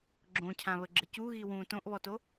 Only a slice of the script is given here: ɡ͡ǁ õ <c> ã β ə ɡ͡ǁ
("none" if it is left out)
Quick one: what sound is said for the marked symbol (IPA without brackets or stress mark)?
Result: cʰ